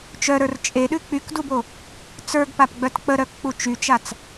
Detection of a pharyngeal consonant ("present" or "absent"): absent